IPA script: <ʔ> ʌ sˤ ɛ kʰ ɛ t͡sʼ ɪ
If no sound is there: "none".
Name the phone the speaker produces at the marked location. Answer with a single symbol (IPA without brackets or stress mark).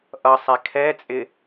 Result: ʔ